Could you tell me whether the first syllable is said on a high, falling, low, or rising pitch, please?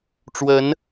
rising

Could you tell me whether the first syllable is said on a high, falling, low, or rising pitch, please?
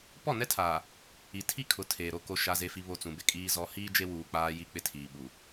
falling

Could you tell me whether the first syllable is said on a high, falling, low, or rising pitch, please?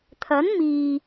rising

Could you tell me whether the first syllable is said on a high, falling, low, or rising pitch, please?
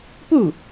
falling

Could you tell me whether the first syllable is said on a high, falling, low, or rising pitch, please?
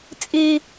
high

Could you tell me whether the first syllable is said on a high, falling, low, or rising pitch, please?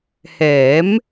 rising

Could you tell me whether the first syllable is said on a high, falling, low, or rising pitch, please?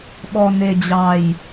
low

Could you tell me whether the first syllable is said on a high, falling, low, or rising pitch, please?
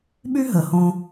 high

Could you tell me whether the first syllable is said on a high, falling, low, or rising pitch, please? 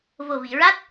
low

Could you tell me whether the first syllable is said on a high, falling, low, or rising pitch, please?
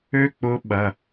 high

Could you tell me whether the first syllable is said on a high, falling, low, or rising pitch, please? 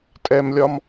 high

